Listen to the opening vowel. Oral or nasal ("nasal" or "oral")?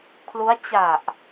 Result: oral